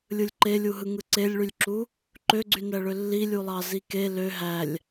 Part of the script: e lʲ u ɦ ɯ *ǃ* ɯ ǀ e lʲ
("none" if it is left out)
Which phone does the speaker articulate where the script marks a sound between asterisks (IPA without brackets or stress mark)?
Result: ŋ